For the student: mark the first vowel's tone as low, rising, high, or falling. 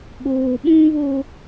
low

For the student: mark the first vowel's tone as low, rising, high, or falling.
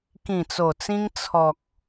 low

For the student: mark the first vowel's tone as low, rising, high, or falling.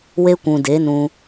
high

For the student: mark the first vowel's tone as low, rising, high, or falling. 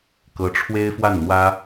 high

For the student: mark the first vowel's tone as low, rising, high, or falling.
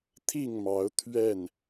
falling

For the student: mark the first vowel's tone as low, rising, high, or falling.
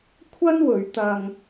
high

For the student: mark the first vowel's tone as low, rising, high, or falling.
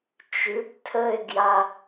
rising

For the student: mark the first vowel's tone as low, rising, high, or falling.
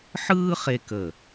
high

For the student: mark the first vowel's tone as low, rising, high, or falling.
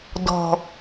low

